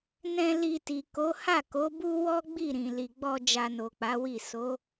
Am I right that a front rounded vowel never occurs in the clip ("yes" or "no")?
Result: yes